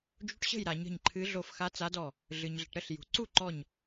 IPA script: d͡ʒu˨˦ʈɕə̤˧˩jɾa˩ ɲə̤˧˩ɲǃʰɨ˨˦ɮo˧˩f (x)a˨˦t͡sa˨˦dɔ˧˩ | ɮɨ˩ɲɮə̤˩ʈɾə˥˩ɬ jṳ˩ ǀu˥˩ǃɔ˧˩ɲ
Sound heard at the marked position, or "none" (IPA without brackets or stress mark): x